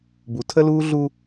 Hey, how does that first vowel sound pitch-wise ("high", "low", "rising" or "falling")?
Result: low